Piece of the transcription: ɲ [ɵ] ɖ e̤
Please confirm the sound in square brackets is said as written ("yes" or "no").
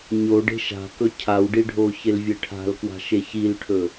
no